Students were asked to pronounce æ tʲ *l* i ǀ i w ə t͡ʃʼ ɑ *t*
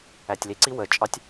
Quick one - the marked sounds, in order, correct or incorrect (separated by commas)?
correct, incorrect